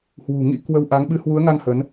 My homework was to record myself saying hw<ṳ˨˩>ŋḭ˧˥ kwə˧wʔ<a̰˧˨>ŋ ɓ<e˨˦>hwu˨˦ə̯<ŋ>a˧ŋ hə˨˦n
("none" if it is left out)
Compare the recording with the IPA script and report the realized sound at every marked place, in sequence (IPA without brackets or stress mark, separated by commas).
ṳ˨˩, a˨˦, ɨ˨˦, ŋ